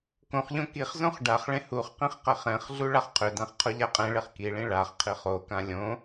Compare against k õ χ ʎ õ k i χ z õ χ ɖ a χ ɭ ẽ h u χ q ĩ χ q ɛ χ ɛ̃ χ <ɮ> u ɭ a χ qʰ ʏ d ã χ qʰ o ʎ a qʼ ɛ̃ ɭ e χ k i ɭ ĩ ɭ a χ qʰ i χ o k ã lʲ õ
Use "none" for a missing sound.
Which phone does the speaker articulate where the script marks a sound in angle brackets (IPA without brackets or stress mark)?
ɮ